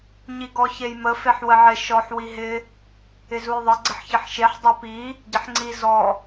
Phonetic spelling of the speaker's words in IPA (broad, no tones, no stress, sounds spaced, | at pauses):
ɲ i ɡ ɔ ç e j m ə f e ħ w ə ʕ ɪ ʃ ɔ ħ w i ɦ ɪ | ɪ z u j ðˤ ɪ ɡ͡ǀ ɪ ħ ç ɪ ħ ʃ e ħ dˤ o p i | ɟ ɪ ħ ŋ͡ǀ i z ɔ